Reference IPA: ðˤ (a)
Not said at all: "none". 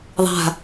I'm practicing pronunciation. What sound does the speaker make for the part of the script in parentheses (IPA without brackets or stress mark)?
a̤